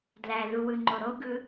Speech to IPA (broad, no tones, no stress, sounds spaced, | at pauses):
d l æ ð u w ɯ ŋ͡ǃ o ɾ o ɡ ɯ